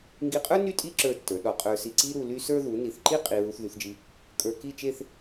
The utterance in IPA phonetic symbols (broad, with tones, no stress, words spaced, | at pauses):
ŋɡi˧qʼə˞˥ ny˥tʼi˥ǁə˞˧ tːə˞˩˧ɗɔ˧ qʼə˞˧si˧ǀi˥ɾu˧ ly˥sə˞˥ ðu˩˧ni˩˧θǃi˥˧ qʼi˧ ɹu˧θðy˩˧θd͡ʒi˧ | kʼə˞˧ki˥˧t͡ʃe˥˧θ